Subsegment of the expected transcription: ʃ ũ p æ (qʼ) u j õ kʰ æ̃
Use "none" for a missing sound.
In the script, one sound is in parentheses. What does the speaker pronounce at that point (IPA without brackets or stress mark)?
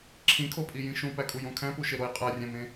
kʼ